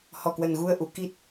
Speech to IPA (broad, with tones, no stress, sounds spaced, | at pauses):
h ɔ˨˩ k w ə˨˩ n ɣ u˧ ə̯ ʔ u˧˩ k i˦˥ t̚